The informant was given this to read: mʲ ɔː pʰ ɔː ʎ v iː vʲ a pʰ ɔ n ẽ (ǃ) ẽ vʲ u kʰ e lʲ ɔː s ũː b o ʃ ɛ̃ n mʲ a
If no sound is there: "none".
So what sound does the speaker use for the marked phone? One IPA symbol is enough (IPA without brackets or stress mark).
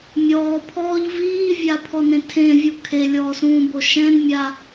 tʰ